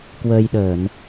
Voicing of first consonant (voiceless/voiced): voiceless